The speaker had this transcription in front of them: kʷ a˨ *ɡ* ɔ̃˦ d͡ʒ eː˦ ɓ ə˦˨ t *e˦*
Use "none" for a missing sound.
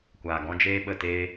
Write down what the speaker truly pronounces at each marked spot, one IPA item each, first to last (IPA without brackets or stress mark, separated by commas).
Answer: ɡ, e˦